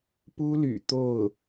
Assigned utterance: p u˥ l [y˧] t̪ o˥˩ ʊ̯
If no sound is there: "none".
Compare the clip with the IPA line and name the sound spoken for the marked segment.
y̰˨˩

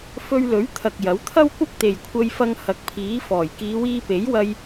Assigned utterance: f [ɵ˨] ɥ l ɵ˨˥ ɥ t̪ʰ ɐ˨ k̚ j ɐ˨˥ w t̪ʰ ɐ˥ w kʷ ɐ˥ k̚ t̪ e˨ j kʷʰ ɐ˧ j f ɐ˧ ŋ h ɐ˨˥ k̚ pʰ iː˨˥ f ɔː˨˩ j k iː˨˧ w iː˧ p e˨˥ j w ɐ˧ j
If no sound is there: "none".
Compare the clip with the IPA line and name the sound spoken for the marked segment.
ɵ˧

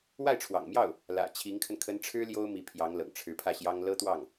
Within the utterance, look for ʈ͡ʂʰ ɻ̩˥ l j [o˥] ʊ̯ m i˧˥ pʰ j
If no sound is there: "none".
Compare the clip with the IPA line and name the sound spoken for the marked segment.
o˥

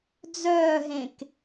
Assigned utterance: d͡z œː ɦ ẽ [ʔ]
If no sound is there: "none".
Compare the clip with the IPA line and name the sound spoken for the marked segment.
k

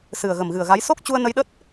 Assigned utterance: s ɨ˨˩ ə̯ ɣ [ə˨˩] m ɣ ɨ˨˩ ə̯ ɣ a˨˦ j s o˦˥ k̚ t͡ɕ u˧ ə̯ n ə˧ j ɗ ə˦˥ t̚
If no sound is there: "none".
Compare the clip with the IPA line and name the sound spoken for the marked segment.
ə˨˩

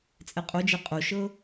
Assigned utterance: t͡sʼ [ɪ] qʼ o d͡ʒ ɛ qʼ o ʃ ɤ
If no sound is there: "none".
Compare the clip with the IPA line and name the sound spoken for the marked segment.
ɛ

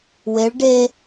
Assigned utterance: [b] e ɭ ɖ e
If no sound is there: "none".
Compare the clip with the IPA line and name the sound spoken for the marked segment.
w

